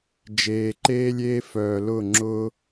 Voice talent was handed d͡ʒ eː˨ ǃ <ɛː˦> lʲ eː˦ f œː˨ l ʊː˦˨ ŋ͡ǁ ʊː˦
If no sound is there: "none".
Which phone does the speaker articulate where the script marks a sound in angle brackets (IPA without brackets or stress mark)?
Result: eː˦